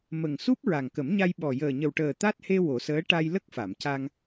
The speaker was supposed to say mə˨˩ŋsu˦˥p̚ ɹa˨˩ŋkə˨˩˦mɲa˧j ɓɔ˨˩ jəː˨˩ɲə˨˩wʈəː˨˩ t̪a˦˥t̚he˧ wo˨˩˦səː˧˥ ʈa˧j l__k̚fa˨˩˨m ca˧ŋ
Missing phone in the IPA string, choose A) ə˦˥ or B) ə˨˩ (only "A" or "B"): A